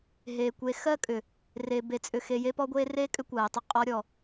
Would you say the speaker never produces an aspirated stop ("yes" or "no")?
yes